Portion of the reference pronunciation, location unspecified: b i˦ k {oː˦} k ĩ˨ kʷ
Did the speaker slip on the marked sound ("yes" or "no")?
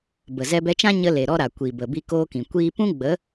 no